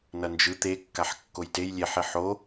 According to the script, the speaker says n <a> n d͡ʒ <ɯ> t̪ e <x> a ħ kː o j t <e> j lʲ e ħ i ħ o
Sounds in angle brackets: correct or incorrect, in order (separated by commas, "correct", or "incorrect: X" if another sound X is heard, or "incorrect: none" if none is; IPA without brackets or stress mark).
incorrect: ʌ, correct, incorrect: kː, correct